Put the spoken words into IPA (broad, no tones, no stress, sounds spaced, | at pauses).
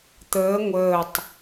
t̪ əː ŋʷ əː tˤ